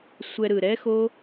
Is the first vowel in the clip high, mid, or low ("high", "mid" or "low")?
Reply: mid